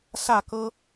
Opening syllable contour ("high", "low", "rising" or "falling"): falling